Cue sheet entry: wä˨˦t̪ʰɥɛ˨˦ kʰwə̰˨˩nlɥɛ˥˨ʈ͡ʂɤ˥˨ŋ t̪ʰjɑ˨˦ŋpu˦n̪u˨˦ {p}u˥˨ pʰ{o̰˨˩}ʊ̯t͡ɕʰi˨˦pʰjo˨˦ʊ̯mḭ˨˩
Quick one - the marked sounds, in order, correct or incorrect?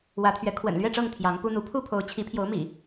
incorrect: pʰ, incorrect: o˨˦

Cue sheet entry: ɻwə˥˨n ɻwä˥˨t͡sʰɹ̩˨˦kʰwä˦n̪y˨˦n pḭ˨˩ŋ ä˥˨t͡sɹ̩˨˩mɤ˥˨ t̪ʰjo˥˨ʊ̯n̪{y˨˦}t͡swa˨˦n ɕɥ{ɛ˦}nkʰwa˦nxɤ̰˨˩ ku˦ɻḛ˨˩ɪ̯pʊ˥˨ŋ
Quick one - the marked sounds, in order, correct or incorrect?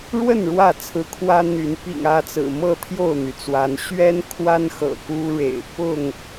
incorrect: y˩, correct

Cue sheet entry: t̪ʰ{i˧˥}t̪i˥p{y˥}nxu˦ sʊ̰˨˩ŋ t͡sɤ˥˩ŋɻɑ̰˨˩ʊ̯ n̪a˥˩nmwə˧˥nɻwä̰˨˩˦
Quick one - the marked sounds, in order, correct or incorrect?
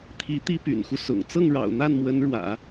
correct, incorrect: y̰˨˩

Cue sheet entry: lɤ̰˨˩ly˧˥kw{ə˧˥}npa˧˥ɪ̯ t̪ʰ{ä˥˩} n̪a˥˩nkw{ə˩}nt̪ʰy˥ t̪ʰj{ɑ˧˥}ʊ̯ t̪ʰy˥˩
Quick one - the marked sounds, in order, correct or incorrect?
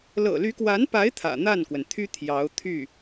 incorrect: a˧˥, incorrect: ä̰˨˩, correct, correct

